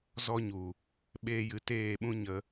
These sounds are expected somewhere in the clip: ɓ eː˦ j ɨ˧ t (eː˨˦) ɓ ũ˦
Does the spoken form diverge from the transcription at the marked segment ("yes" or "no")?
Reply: yes